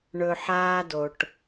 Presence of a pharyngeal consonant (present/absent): present